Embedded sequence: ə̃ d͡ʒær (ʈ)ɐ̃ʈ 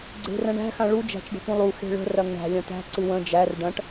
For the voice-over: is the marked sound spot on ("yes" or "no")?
no